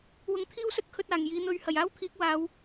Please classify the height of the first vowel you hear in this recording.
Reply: high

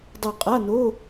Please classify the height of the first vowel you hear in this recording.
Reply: mid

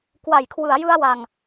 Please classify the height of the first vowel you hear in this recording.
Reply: low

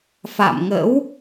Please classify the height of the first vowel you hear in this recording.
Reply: low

